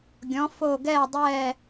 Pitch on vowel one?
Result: rising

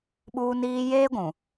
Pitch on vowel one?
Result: high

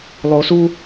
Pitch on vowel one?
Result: high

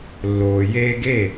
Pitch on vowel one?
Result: low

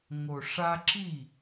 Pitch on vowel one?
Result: low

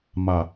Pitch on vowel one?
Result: low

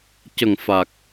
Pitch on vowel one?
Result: low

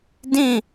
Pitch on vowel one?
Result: falling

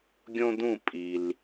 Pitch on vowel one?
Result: high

